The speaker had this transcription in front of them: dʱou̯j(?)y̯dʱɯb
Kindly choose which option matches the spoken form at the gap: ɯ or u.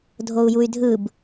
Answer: u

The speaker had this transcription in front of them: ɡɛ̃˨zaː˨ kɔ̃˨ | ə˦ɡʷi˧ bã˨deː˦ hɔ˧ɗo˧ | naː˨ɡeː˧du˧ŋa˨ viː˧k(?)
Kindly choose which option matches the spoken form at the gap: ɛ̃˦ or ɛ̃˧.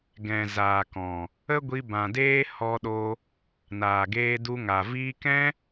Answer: ɛ̃˦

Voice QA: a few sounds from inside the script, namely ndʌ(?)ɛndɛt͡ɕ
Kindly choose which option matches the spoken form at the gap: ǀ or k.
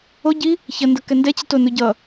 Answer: k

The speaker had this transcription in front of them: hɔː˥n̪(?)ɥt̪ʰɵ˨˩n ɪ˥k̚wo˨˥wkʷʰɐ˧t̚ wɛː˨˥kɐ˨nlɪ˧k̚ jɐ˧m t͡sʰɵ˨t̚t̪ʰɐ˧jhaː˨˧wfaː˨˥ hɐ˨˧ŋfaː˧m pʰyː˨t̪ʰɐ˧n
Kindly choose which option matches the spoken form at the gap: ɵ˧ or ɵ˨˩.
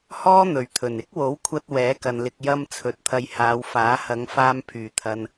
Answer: ɵ˨˩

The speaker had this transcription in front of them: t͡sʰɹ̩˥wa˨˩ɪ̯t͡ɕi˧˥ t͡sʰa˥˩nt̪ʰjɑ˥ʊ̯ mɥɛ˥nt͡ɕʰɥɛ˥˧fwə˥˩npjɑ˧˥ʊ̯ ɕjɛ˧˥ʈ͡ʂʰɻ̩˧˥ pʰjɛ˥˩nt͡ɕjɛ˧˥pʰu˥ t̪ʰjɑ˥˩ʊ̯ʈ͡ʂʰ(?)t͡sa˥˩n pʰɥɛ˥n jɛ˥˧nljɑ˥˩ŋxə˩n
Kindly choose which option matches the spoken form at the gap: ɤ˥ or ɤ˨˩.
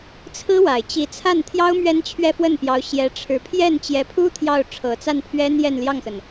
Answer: ɤ˨˩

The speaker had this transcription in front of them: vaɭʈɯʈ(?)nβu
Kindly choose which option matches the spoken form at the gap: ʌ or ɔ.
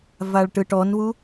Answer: ɔ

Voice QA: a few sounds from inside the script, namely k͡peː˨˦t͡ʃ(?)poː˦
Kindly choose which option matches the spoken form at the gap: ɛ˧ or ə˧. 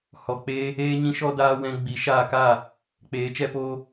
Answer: ɛ˧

